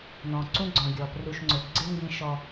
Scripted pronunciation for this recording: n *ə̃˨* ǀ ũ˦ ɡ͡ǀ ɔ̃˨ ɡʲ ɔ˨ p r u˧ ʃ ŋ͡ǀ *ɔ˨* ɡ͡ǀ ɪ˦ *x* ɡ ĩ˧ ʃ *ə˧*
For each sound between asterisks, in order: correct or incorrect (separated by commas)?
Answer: incorrect, incorrect, incorrect, incorrect